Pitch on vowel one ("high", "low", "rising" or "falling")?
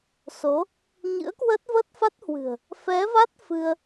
rising